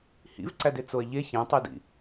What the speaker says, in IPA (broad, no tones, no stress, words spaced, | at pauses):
hḭvǀæde t͡soɐ̯ʎe çæ̃tˤedḭ